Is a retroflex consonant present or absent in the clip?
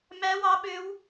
absent